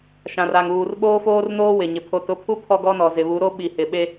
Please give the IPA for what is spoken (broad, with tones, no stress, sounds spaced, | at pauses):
ʃ ã˨ r a˨ ŋ uː˨ r ɓ oː˦ f oː˦ r n oː˦ w ɪ˨ ɲ ɪ˨ pʰ o˨ t ʊ˨˦ pʰ u˦ pʰ ɔ˦ ɡ ɔ˦ n ɔ˨ z ɪ˨ β u˨˦ ɾ o˦ ɓ i˨ h ɪ˨ ɓ e˦